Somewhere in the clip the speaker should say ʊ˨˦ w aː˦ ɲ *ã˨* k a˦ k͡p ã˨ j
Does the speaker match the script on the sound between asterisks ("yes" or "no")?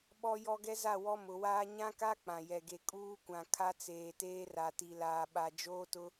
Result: no